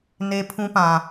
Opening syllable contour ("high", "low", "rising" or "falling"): high